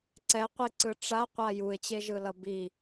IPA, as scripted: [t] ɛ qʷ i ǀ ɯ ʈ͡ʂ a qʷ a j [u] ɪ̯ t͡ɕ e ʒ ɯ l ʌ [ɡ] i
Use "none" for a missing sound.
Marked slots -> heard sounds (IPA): ǀ, u, b

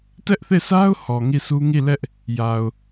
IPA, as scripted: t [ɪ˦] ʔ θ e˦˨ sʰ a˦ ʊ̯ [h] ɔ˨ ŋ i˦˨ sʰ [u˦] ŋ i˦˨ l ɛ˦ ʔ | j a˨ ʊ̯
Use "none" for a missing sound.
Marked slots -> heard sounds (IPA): ɛ˦, h, u˦

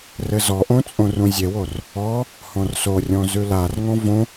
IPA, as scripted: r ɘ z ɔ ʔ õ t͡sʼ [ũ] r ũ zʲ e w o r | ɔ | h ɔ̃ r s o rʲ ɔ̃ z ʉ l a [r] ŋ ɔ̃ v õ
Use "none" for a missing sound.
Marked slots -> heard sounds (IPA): õ, r

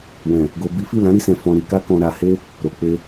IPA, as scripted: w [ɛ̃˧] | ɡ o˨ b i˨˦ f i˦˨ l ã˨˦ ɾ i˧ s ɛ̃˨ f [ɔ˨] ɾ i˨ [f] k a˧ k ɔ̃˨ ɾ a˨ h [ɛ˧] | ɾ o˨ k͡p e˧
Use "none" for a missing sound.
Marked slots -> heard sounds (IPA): ɛ̃˨, ɔ̃˨, none, e˧

